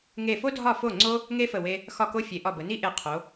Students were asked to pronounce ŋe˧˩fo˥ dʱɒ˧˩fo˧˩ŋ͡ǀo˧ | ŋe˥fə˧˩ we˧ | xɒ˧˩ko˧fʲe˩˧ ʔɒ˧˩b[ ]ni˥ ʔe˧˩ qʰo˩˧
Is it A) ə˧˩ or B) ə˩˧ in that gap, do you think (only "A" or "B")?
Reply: B